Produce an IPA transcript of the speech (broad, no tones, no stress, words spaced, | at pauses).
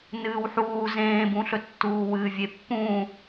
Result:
nɨːwħuː zẽːbũɬɵ tːuːwɨːvʲepːũː